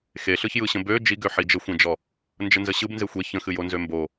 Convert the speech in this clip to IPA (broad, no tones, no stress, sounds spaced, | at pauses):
x e ɬ ɯ ç j ɯ ɕ ə̃ b ø d͡ʒ i ɡ ø ħ i d͡ʒ ə xʷ ẽ d͡ʒ ɔ | n d͡ʒ ə n z ə ɕ ɯ b n z e xʷ e ç ə̃ x ɨ j o n z ø m b o